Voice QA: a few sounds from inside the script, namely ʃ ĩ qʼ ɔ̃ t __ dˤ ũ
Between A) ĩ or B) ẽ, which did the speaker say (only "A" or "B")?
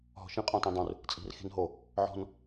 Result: A